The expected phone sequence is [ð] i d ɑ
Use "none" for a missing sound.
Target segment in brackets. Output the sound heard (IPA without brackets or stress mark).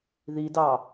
ð